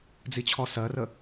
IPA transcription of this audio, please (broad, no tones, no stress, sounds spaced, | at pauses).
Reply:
d͡z i t͡ɕʰ ɔ s ɜ r ə